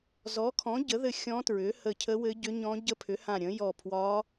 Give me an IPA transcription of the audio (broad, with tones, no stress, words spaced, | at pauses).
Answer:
zɔ˩˥kʰɔ̃˩˥ ɟə˩˥ðɘ˧˩ xʲɔ̃˧˥tɹʏ˩˥hə˧˩ cʰə˧˥wɘ˧˥ɟʏ˧˥ɲɔ̃˧˥ ɟə˧˥pʰʏ˩˥hã˧˩ɾʲə̃˩˥ jɔ˧˩pʰwɒ˧˥